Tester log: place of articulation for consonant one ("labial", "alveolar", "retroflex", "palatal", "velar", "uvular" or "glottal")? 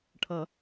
retroflex